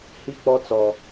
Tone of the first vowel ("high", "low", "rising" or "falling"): high